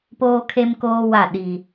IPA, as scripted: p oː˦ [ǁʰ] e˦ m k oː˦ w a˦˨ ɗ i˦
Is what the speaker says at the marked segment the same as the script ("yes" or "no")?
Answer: no